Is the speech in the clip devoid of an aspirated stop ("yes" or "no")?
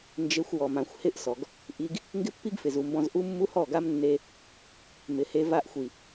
yes